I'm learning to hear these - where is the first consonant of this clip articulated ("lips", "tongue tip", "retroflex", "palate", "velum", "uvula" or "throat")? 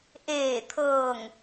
throat